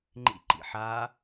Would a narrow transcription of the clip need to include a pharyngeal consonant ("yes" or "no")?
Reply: yes